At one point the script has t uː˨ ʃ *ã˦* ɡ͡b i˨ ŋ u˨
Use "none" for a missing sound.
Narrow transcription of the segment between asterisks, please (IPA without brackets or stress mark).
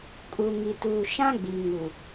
ã˦